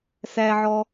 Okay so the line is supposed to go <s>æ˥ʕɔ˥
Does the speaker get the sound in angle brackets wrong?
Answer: no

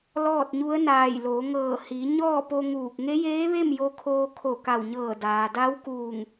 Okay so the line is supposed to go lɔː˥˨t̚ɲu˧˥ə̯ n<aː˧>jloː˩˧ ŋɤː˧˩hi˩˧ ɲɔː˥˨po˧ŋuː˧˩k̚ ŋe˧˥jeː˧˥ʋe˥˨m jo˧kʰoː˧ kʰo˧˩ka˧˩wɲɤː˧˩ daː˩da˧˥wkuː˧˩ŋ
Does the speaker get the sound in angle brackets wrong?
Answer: yes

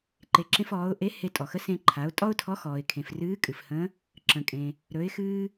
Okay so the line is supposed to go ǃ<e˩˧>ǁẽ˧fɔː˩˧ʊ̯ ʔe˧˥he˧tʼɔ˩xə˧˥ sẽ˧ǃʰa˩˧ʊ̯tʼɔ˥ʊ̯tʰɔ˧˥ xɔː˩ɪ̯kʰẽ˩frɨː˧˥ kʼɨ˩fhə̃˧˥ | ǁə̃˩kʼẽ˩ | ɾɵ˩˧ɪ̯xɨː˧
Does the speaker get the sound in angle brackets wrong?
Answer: no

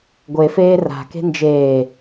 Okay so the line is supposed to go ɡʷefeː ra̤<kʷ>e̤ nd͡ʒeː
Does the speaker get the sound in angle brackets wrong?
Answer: yes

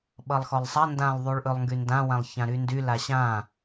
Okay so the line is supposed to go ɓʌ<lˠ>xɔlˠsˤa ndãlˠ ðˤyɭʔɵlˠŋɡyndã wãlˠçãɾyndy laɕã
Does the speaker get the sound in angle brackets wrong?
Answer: no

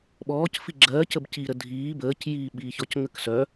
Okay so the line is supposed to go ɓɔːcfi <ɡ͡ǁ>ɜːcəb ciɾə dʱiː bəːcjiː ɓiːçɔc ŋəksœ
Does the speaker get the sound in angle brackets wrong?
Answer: no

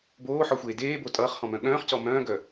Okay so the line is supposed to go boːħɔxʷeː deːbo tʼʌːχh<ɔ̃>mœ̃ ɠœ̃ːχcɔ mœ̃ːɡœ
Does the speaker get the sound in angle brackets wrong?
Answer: no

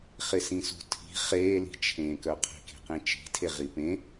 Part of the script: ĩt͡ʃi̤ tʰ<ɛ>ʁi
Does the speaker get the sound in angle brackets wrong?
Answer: yes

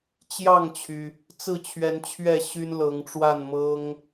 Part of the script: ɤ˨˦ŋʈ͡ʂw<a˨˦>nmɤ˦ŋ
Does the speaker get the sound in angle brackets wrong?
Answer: yes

